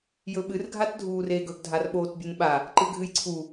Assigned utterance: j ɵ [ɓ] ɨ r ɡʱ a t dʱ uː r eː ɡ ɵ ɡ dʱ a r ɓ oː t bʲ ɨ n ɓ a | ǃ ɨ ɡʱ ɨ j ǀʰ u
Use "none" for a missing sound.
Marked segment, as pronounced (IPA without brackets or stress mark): ɓ